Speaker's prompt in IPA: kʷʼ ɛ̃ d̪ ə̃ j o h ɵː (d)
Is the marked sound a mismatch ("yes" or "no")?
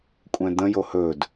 no